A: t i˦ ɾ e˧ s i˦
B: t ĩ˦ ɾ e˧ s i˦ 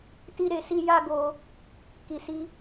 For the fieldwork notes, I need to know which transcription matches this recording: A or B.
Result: A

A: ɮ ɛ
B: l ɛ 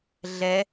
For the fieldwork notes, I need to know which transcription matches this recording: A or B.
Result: A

